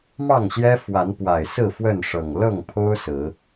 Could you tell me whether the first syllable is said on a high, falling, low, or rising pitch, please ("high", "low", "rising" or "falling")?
falling